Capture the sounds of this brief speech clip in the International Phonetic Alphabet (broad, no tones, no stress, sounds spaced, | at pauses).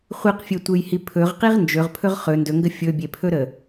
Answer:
χʷ i q fʲ e tʷ e j h i pʰ ɵ ʁ q i ʁ n d͡ʒ ɵ ʁ pʰ ɵ ʁ χ ɵ n d ɵ ŋ ɡ ə fʲ ɵ bʲ e pʰ ɵ ɾ ə